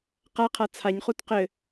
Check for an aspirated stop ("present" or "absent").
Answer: present